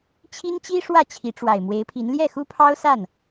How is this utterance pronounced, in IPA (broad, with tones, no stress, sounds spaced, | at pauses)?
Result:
t͡ɕʰ i˥ n t͡ɕ i˥ ʂ w ä˥˩ t͡ɕʰ i˧˥ ʈ͡ʂ w a˨˩ ɪ̯ m w e˧˥ ɪ̯ pʰ i˧˥ n l j ɛ˥˩ x u˥ pʰ ɑ˥ ʊ̯ s a˥˩ n